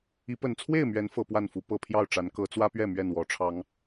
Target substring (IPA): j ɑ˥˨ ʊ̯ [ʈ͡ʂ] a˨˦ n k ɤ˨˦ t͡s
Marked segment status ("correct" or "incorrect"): correct